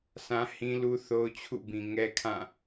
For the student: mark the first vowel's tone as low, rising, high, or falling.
high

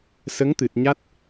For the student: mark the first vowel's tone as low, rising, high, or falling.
rising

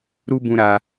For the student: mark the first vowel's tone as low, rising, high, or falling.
high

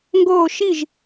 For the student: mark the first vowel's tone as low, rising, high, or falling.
falling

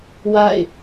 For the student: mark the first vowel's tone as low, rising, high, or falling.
falling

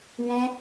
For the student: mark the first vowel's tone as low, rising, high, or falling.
high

